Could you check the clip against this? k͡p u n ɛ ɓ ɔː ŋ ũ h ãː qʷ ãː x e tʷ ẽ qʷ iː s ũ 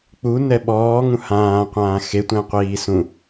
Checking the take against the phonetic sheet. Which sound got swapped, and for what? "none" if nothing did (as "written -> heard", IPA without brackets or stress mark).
none